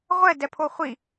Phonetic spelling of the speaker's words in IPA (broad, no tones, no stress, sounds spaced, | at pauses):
ʁʷ ɛ d ɛ pʰ o χʷ i